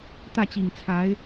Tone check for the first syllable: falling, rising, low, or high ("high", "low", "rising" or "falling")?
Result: falling